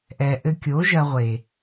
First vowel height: mid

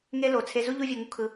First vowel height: mid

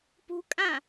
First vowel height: high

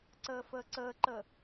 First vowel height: mid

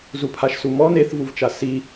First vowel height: high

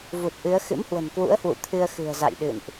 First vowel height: high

